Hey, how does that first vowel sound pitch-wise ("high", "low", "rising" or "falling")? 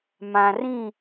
low